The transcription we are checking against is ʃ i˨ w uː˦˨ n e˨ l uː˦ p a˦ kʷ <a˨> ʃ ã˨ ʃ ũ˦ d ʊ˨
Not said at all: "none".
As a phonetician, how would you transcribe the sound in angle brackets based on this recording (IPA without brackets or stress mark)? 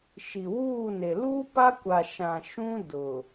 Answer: a˨